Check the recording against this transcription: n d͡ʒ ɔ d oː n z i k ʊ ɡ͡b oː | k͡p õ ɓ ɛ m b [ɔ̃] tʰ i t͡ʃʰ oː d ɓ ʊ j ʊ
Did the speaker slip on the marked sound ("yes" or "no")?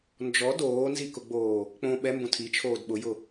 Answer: yes